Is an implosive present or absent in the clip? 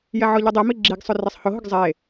absent